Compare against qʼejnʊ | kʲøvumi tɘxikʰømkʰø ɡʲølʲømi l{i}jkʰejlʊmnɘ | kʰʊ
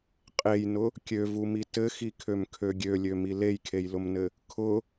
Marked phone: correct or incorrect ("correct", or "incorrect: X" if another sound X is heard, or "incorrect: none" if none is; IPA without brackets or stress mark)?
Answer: incorrect: e